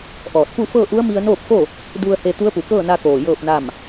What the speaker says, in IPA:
ʔɔː˧˩t̚ pu˥˨fɤː˥˨ʔu˧˥ə̯mi˧ə̯ noː˥˨p̚fo˥˨ | du˧ə̯he˧ t̪u˧˥ə̯pu˩˧kɤː˥˨na˧ koː˧˩jɤː˥˨p̚na˥˨m

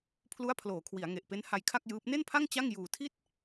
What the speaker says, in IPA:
pʰlu˦˥a̯ pʰloː˩˦kʰwi˩˦a̯ŋe˨˩ʔpe˦˥n ha˧jkʰa˥˩k̚jɯː˦˥p̚ ne˥˩npʰa˥˩ŋ t͡ɕa˥˩ŋ juː˨˩tʰi˥˩t̚

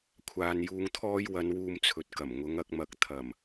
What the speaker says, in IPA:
kʷʰaː˨njuː˧ŋt̪ʰɔː˥j wɐ˨˧nwuː˧mt͡sʰɵ˨t̚kɐ˨˩m ŋʊ˨˧ŋɐ˧k̚mɐ˨˥k̚ t̪ʰɐ˨˩m

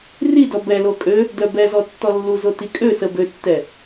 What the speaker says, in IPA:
ridɔ bɛlo kʼø | dœbɛzɔ tːɔlːuzo tikʼøsə bøtːɛ

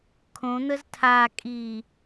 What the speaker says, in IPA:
kʰõn̪əz tʰakʼi

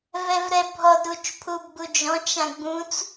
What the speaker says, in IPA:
vɛvɾɛbʱɔd ɾut͡ʃpʰubɡ͡bud͡ʒɔ̃ t͡ʃãɡ͡bũt͡s

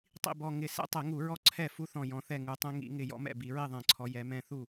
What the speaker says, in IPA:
tˤḭ˥˩bɔ˧˩ ŋɪ˧˩˧ sɛ̰˦tˤɛ˧˩˧ŋu˧˩˧ɹɔ˦ ǀʰɛ˥˩fu˦θɔ̃˧˩ jɔ̃˩˧θɛ˧˩ ŋu˩˧tˤɛ̃˦ ŋḭ˧˩˧ŋɪ˧˩ jɔ̰˦mɛ̰˥˩bi˧˩˧ ɹi˥˩ðˤɛ̃˧˩˧ǀʰɔ˩˧ jɛ˩˧mɛ̃˥˩ θu˥˩

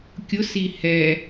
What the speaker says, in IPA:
kʲʊsi hɛ

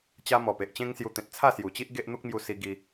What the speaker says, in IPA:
t͡ɕa˦ mɔ˨˩pe˨ʔt͡ɕẽ˦ŋsju˧ t̪ẽ˨t̚ t͡sʰa˥˧sju˨˩t͡ɕi˦ʔ ɡe˦ʔ n̪u˦k̚mju˧ si˧ ɡi˧

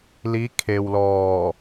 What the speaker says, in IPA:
li˧˥ kʰe˧w lɔː˧˩

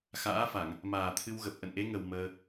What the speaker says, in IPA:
xa̰ː˧˥fa˧˩˨ŋ | maː˨˩t̪ʰɨ˧wɣə˨˩p̚ ʔə̰˧˨nʔe˨˦ŋə˨˩w məː˧

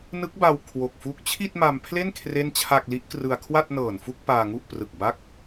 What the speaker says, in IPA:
nɯ˦˥k̚ba˧w kʰwo˨˩k̚fu˦˥k̚ t͡ɕʰi˥˩t̚ma˧mpʰle˥˩n kʰre˥˩nt͡ɕʰa˥˩k̚ li˦˥ʔkrɯ˧a̯kʰwa˥˩t̚nɤː˨˩n fu˥˩k̚ paː˧ŋu˥˩ʔ prɯ˨˩k̚ba˦˥k̚

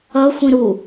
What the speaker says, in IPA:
ʌ xʷĩɾu

